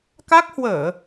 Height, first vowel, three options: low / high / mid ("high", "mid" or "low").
low